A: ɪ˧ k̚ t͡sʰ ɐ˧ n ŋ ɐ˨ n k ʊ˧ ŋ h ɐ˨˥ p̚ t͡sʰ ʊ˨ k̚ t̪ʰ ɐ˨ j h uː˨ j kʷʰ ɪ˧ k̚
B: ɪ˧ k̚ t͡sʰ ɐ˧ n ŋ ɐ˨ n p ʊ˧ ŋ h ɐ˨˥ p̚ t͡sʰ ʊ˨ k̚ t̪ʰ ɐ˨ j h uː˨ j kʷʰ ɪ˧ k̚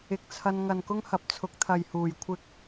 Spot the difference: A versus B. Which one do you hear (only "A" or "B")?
A